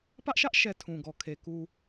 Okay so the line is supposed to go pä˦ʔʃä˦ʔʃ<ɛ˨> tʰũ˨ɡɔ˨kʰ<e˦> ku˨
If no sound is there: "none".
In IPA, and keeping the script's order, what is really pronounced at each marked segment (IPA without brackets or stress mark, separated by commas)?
ɛ˨, e˨